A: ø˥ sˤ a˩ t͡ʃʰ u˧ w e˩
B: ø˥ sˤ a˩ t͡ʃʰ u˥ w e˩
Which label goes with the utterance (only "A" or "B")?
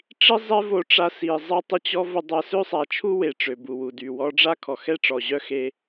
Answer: B